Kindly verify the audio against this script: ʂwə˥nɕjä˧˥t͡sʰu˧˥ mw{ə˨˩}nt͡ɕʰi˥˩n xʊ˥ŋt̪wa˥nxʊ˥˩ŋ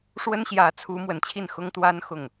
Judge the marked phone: correct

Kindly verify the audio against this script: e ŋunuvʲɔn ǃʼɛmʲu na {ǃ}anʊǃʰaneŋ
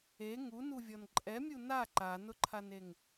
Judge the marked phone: correct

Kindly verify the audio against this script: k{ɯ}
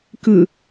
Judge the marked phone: correct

